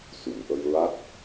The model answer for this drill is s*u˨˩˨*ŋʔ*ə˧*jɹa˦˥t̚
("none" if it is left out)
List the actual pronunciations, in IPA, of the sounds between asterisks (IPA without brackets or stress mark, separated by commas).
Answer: u˨˩˨, ə˧